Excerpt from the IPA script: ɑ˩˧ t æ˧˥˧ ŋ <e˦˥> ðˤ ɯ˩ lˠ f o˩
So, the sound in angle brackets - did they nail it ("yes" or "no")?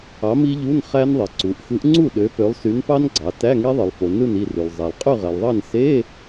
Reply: yes